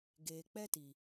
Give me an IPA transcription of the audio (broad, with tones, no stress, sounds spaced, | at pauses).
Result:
ɡ eː˨ k͡p ɛ˦ t i˨